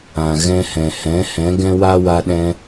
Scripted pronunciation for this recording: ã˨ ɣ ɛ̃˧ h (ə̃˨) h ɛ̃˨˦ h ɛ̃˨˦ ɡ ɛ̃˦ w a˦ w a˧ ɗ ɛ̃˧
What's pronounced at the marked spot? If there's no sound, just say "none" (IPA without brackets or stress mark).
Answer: ɛ̃˨